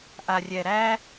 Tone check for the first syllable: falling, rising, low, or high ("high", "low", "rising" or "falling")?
low